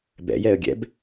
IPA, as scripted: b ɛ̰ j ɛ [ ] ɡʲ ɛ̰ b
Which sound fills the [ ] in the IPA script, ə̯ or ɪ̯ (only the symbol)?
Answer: ə̯